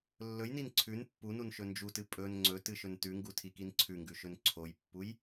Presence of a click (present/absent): present